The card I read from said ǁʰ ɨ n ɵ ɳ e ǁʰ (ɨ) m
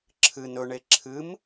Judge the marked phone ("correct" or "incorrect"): correct